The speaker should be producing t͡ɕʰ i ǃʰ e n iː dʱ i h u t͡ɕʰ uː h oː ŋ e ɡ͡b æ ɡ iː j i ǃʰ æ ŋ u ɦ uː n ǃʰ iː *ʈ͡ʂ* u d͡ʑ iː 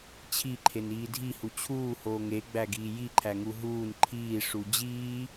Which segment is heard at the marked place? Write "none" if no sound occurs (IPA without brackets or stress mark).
ʂ